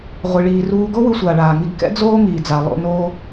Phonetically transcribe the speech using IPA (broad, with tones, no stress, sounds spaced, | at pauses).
ʁʷ i˨ ɭ iː˨ r uː˧ ɡ o˦ w ɯ˧ sʷ aː˨ ɭ aː˨ ŋ i˧ ɡ k ɛ̰˦ d͡z oː˦ ŋ iː˨ d͡z a˨ lˠ o̰˧ n oː˧